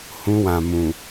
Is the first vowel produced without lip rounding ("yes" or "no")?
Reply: no